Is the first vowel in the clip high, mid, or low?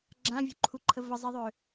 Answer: low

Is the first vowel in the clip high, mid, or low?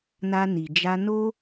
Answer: low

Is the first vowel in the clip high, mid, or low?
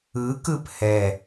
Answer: high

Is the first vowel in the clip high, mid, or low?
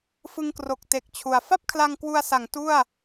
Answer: high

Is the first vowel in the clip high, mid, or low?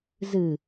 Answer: high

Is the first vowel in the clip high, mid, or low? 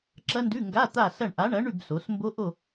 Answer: low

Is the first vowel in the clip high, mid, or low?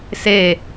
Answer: mid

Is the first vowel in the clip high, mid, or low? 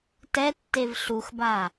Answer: mid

